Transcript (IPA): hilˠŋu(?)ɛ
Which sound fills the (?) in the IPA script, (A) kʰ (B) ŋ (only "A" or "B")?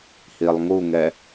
B